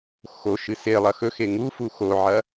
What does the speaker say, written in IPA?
xoʃɨ selˠɐ xɵxe ŋufu xoʕɐ

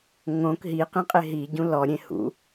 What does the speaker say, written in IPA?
ŋõk ɦiqĩqʼe ɦiɟũ lɔɾʲẽ hṵ

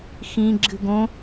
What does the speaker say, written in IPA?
xĩ ɡ͡ǁɨɡõ

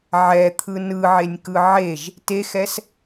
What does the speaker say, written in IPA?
ʕɛt̪ʰɯ nɯʕenʲkɯ ʕeʒ | texɛs

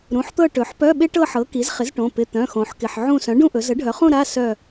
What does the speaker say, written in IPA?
ɾũ˩˧˩ħt̪ɤ˦˨ ʈɵ˩˧ħpœ˧˥˧ ɓɪ˦˥ʈɤ˦˨ħɤ˩˥ ki˩˥zχɪ˩˥zʈõ˩˧˩ pɪ˩˧˩ t̪œ̃˩˧˩xõ˩˧ħkɪ˩˧˩ħ ʕũ˦˨ sœ̃˩˥ɖũ˦˨ʔɵ˩˧ zə˩˥ɖʱœ˩˧χũ˦˨ ɾa˧˥˧sœ˦˨

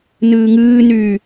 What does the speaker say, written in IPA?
nɨːŋɨːnyː

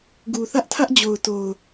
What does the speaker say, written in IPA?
ɡu˨θä˦ʔtʰä˦ʔ d͡ʑo˨ʊ̯to˨ʊ̯

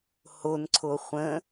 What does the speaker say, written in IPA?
honǀʰo χʷə̃

